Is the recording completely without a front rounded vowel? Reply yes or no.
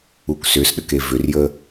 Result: no